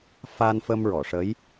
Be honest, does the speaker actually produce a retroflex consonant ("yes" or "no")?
yes